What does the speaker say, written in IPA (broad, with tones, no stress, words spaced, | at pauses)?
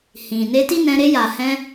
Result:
hĩ˨ ne˧ti˦nɛ̃˧ ɾe˧ja˨hɛ̃˧